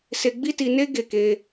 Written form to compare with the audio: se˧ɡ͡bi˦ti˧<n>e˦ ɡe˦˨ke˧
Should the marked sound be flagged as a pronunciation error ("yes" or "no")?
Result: no